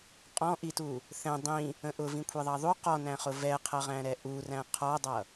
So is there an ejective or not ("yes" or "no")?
yes